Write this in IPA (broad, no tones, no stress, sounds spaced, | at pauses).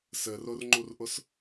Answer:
s ɘ r ʊ r ŋ͡ǃ u r ʔ ʊ s